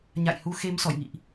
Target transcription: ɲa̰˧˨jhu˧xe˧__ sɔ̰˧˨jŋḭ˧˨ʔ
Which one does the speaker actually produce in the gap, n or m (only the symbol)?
m